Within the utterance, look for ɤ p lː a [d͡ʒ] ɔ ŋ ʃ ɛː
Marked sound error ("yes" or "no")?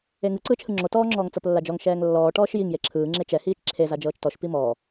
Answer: no